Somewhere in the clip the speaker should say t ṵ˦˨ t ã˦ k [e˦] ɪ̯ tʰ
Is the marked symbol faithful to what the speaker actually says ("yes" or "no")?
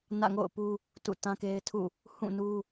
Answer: yes